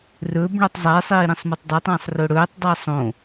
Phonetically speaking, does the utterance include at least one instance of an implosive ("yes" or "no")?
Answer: no